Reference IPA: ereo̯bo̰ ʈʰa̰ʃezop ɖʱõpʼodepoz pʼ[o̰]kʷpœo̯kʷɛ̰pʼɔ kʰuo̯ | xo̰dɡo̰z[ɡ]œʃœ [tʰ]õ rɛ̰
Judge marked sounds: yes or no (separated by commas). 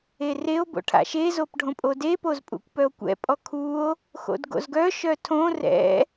no, yes, yes